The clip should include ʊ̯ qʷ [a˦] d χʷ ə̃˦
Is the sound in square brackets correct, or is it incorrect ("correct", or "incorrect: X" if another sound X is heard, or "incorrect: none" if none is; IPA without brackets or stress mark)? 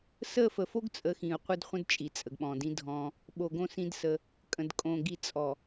incorrect: ə˦